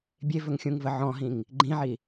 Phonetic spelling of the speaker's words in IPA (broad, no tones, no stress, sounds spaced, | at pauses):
bʲ e v ɵ ŋ xʲ ũ ŋ v ə ʕ ɔ̃ ɦ ĩ ŋ | ɡ͡ǃ ĩ ʕ i